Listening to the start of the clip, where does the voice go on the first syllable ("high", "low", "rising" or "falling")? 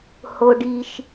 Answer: high